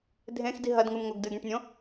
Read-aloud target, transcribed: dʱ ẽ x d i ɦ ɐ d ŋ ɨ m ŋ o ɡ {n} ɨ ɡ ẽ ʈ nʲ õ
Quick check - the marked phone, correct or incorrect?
incorrect